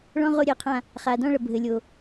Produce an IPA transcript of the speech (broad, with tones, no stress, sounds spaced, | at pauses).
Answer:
ɭ ɔ̃˦ ʁ o˦˨ ɾʲ ɛ˦˨ qʰ ã˦˨ | χ a˨ d ɔ̃˦ ɭ ɐ˨ bʱ ɘ˨ lʲ o˨